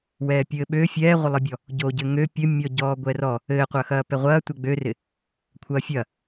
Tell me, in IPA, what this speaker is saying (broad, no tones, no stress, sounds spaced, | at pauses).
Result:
w ɛː pʲ ɘː ɓ ø fʲ ɛː ʁʷ ɪ lˠ ɪ bʲ ɔ | ɟ o ɟ ɘ ŋ ø pʲ ɘ mʲ ɔ ɟ ɔː ɡʷ ɛ r ɔ | ɘː qʷ ɐ x ɐː p ɛ ʁʷ ɐː tʷ ɛ ɡ͡b ø r ɪ | kʷʰ ɐː fʲ ɐ